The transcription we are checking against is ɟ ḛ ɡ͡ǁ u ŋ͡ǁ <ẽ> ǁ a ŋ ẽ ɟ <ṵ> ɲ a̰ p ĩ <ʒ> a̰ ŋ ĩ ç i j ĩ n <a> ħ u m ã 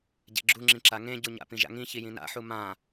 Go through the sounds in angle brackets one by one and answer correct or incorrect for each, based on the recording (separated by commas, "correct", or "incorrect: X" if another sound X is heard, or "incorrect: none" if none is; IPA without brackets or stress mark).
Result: incorrect: ĩ, incorrect: u, correct, incorrect: a̰